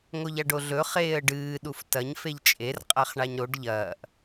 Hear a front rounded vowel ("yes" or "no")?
no